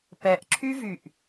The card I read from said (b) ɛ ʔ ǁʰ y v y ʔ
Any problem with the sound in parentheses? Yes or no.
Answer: yes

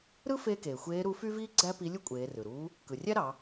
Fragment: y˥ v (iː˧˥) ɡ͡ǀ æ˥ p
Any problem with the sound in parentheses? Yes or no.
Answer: yes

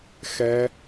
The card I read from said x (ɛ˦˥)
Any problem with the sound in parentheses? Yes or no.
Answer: no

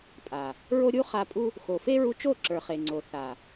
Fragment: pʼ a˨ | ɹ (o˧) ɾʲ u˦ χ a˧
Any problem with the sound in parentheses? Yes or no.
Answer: yes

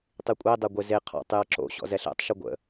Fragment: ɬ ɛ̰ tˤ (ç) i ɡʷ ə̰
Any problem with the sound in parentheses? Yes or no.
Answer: yes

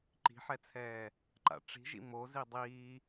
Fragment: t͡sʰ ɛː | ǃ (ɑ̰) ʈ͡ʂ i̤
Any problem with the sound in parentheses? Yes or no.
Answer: yes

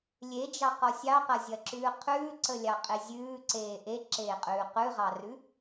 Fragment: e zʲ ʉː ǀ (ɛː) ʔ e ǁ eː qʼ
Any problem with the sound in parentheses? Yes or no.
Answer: yes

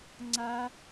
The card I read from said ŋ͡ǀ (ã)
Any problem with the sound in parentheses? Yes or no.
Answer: yes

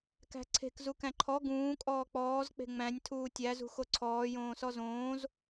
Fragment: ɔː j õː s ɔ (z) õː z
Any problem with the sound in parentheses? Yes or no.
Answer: no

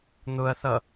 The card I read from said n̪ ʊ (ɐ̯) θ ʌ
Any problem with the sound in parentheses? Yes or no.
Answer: no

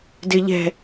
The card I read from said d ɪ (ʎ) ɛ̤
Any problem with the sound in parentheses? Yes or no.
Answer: no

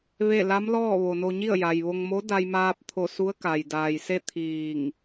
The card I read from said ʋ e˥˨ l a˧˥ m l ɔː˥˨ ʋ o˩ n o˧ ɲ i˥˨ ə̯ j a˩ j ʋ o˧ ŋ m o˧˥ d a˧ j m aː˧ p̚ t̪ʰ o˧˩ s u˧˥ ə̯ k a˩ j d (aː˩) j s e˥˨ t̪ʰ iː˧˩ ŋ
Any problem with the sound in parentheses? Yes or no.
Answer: no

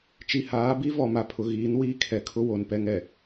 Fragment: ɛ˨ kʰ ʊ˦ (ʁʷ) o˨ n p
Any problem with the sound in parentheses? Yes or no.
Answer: yes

